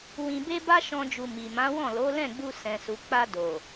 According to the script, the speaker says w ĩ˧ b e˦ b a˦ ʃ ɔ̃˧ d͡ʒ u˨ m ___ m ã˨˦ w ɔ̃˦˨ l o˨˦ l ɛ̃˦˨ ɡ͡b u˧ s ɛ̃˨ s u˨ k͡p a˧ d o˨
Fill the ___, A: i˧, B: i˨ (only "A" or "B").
B